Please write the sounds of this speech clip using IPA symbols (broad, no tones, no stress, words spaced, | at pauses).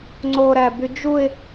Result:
ŋ͡ǀoɾæby d͡ʒuɪ̯